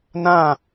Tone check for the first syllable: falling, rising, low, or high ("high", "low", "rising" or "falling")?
falling